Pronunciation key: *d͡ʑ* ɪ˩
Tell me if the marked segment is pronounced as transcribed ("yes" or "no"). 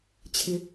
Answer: no